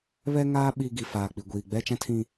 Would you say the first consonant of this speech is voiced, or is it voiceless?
voiced